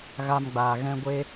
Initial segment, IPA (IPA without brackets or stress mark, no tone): ɣ